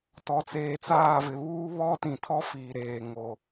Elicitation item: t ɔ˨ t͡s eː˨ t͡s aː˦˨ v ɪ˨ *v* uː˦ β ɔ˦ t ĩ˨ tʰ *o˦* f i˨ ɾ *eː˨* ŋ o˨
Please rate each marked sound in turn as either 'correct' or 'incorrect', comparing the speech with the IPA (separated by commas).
incorrect, incorrect, correct